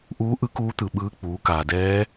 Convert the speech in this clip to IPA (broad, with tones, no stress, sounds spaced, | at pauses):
ʔ uː˧˥ ʔ ɯ˧˥ k uː˧˥ t̪ ɯ˩ ɓ ɯː˧˥ k͡p uː˩˧ k aː˩ d ɛː˧˥